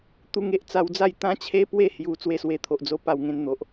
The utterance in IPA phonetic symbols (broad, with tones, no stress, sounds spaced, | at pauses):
t̪ u˧ ŋ e˦ ʔ t͡s a˧ w d͡z a˥˧ j t̪ ã˦ t͡ɕʰ e˦ p w e˥˧ h j u˨˩ t͡s w e˥˧ s w e˧ t̪ʰ o˨ ʔ d͡z o˧ p a˥˧ w ŋ ẽ˦ n n̪ o˨ ʔ